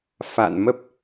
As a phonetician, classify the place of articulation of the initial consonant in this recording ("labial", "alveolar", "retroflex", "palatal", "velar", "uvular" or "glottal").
labial